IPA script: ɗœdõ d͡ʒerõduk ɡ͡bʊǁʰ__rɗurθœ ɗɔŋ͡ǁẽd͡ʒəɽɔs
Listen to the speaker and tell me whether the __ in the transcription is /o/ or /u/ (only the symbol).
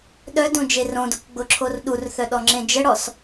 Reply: o